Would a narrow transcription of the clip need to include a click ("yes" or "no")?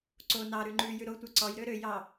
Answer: yes